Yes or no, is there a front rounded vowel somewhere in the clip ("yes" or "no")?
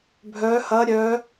yes